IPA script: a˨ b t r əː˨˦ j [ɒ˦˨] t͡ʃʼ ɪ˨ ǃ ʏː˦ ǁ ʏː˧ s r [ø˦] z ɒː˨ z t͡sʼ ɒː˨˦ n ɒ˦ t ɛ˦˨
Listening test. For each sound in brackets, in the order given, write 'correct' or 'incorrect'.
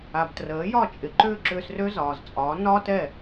correct, correct

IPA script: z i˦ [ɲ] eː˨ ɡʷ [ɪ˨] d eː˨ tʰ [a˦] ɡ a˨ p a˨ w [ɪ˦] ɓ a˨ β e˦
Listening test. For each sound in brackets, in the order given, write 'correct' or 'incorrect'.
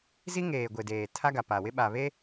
incorrect: ŋ, correct, correct, correct

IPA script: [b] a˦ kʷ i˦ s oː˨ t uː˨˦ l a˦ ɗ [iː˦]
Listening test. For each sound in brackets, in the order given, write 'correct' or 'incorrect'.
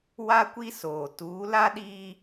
incorrect: w, correct

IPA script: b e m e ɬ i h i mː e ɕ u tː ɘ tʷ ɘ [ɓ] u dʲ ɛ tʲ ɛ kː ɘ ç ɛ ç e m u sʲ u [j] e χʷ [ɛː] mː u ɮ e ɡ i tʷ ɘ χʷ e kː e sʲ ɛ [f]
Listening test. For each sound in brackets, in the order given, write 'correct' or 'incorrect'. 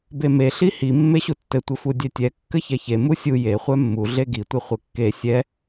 incorrect: f, correct, incorrect: ɛ, incorrect: none

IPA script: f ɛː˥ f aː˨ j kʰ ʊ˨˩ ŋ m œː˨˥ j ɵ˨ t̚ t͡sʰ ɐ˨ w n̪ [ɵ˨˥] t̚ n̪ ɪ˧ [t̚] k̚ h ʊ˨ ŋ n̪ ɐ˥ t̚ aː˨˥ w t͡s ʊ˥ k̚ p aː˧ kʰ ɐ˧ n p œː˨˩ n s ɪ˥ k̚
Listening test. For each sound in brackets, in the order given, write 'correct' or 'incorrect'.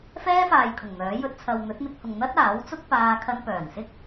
correct, incorrect: none

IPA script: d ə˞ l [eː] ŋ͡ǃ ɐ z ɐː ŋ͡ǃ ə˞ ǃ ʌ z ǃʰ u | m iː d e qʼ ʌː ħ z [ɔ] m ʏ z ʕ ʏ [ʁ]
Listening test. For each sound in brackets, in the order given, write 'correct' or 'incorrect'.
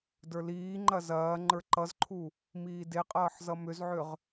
incorrect: iː, incorrect: ʌ, correct

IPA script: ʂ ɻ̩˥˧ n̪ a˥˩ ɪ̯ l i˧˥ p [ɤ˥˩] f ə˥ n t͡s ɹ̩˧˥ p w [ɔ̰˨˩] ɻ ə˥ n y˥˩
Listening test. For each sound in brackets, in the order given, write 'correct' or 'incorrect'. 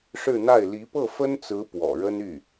correct, correct

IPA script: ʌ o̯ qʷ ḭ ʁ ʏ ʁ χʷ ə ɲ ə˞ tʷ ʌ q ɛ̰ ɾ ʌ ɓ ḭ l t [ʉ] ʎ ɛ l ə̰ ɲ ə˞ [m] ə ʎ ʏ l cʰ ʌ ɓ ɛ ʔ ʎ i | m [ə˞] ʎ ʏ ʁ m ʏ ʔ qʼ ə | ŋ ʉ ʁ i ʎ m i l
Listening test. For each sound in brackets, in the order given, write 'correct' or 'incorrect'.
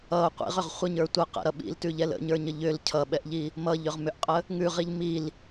correct, incorrect: ɲ, incorrect: ʌ

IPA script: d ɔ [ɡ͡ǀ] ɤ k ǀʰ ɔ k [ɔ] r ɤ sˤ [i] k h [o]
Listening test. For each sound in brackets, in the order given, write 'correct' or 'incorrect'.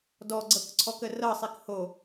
correct, incorrect: ə, correct, correct

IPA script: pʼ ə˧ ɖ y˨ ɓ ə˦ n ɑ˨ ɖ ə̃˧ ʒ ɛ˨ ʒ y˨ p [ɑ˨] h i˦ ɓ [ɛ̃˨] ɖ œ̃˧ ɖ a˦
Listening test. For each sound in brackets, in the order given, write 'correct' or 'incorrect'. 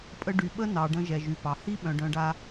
correct, incorrect: œ̃˨

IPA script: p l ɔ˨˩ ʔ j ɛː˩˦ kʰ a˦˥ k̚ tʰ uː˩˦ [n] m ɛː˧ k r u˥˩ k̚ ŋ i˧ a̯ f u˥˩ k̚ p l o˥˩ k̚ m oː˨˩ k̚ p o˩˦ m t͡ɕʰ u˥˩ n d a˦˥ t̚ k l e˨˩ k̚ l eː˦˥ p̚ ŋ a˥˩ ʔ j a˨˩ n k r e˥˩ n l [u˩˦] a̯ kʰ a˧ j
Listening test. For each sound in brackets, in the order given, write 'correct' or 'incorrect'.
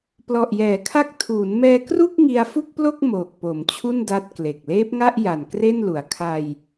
correct, incorrect: u˨˩

